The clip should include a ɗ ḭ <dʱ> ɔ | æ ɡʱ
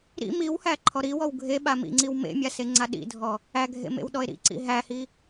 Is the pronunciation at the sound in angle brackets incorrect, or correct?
correct